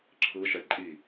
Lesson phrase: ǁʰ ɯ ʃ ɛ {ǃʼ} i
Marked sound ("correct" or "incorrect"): correct